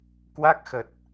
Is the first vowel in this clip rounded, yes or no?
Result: no